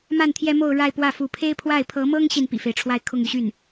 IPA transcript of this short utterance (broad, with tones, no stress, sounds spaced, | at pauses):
m a˥˩ n t̪ʰ j ɛ˥ m o˥˧ ʊ̯ ɻ a˥˧ ɪ̯ p w ä˥˩ f u˧˥ pʰ e˥ ɪ̯ pʰ w a˥˩ ɪ̯ pʰ ɤ˧˥ m ɤ˥ ŋ ɕ i˨ n p ḭ˨˩ f e˦ ɪ̯ ʈ͡ʂʰ w a˥˧ ɪ̯ kʰ ʊ˥˧ ŋ y˥˧ ɕ y˥˩ n